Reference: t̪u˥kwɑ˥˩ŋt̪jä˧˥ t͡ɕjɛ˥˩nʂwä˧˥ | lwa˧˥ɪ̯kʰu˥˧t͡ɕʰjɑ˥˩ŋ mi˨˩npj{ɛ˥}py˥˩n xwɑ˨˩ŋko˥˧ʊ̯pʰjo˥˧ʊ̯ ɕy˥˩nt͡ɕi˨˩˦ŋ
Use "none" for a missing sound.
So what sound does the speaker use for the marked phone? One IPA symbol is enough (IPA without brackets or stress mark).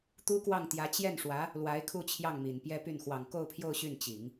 ɛ˥